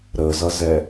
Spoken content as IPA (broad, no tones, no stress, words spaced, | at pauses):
ɾəzʌzɛ